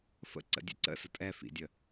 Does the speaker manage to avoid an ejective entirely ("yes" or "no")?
no